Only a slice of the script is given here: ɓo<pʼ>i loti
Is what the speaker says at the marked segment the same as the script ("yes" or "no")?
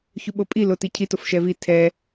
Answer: yes